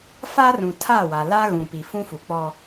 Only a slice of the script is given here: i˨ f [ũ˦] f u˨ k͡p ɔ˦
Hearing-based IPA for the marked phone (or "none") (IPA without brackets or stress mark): ũ˦